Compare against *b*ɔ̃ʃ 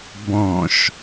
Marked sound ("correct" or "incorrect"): correct